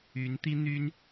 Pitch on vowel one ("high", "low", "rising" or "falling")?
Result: rising